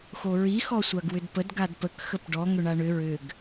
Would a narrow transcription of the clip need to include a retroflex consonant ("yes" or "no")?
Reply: yes